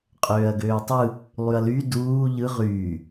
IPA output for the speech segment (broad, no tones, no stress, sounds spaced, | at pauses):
qʼ øː ɐ̯ ɡ øː tˤ ɯ | lˠ y ɐ̯ l y d uː ʎ ɯ ʁ yː